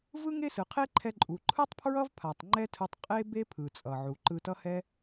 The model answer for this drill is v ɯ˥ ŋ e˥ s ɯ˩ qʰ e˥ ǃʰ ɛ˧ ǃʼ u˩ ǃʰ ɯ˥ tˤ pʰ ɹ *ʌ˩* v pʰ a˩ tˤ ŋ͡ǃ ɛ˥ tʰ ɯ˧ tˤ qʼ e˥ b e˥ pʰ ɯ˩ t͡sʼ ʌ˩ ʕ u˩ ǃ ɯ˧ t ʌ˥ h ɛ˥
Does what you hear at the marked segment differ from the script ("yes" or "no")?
yes